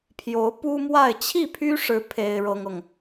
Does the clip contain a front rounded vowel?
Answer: yes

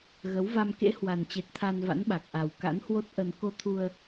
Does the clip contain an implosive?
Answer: yes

